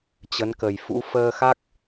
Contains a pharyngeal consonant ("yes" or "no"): no